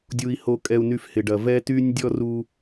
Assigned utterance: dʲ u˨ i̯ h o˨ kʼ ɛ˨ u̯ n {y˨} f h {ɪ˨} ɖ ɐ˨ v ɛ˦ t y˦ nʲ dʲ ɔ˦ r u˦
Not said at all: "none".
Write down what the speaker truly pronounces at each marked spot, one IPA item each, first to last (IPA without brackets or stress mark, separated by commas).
y˨, ɪ˨